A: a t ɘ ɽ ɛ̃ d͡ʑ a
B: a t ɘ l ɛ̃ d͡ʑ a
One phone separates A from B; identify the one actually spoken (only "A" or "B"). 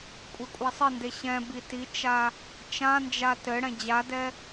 A